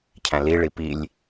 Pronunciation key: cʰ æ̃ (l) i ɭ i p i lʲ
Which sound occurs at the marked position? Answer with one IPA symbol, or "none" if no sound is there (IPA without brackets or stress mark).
l